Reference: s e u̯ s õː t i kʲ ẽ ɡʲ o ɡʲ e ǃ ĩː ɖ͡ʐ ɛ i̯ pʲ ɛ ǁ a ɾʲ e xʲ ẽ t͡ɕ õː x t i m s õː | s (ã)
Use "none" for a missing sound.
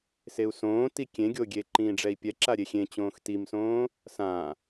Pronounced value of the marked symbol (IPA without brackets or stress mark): ã